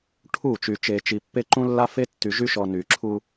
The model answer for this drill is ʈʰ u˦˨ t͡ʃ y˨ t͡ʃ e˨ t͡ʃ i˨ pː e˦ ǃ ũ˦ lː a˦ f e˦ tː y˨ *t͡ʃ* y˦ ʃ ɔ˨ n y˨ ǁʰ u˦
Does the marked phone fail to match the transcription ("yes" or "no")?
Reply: yes